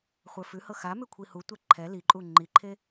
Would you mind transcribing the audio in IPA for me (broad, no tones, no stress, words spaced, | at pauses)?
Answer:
χʷə˞fʉhɤ xa mʉkʷʰihutʷɛ ǃʰɛ liǃʼu ŋ͡ǃiǃʰe